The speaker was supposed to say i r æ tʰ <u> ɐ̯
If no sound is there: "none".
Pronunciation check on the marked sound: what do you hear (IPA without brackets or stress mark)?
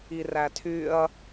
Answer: y